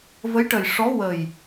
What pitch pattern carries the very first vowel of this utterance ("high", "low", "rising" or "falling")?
rising